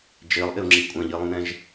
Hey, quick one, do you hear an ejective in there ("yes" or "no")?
yes